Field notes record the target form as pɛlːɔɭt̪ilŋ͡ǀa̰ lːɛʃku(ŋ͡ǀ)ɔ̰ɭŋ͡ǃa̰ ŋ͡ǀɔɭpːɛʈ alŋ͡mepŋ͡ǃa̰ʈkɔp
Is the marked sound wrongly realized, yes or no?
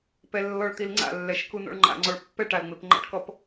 yes